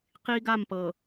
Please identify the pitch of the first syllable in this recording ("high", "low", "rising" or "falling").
high